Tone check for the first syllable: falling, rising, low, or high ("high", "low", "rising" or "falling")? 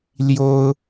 high